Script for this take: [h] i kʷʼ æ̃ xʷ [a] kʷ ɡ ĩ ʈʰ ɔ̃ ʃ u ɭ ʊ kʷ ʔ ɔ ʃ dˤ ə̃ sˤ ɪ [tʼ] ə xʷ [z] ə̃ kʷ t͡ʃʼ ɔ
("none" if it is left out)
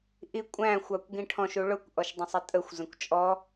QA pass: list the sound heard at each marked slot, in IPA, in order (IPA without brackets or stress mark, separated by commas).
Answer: ʔ, ɑ, tʼ, z